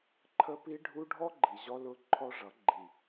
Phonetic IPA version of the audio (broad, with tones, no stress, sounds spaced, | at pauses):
ǃʰ ə˦ p i˦ ɖʱ u˦ ɖʱ ɔ˦ ɡ͡ǃ i˨ ʑ ɔ˧ l ʊ˧ ǃʰ ɔ˦ ʐ ʌ˨˦ ɡ͡ǃ i˨